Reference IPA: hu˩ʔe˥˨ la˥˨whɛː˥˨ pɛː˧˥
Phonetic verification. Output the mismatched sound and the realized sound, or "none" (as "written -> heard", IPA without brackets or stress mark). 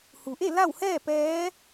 none